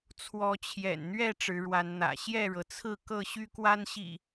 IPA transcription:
t͡sʰwɔ˨˦t͡ɕʰjɛ̰˨˩nn̪ɥɛ˥˨ ʈ͡ʂɻ̩˨˦ɻwa˨˦nn̪ä̰˨˩ ɕjɛ˥˨ɻɤ˩t͡sʰɹ̩˥˨ kɤ˥˨ɕy˦kwa˦nɕḭ˨˩

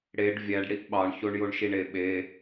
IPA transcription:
ɽeɖ vʲæɖ ɽiʔɓɑɳ çoɳjoɳʃiɳe ɓe

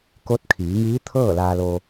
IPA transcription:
ko˧˥t̚kʰiː˩˧ŋiː˧˥t̪ʰɤː˥˨ laː˧loː˧

